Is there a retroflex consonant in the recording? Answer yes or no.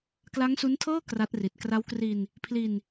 no